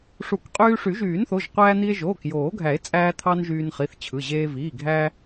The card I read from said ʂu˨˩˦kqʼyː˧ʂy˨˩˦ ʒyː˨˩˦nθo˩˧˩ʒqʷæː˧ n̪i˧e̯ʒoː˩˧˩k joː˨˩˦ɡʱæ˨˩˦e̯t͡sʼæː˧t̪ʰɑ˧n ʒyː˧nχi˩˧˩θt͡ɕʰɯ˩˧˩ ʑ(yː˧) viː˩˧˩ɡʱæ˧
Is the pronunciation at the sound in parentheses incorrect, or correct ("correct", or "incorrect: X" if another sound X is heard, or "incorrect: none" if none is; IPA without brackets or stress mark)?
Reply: incorrect: eː˧